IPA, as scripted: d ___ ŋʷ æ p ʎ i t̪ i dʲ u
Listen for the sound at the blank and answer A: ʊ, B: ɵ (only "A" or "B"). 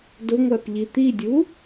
A